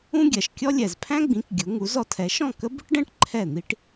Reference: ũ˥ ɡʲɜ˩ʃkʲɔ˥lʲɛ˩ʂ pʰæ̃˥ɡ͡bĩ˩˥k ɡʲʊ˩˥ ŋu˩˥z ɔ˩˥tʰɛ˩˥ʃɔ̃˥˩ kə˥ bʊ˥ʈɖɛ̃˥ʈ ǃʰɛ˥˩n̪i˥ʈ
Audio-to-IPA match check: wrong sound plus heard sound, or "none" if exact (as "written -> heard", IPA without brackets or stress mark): ʂ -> z